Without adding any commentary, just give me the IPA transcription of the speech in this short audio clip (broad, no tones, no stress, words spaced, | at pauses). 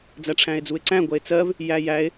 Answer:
d͡zæʈ͡ʂʰæ̃e̯d͡zue̯ǀæ̃ ɡʷɜe̯t͡sɜv | jæjæe̯